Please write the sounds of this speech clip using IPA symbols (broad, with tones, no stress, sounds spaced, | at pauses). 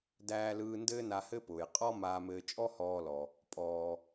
d æː˧ l ɯː˧ n d ɘː˥ n a˧ h ɘ˥ p ʊː˩ j qʼ ɔ˥ m aː˧ m ɘː˧ t͡ʃʼ ɔ˥ h ɔː˧ l ɔ˩ | pʼ ɔː˩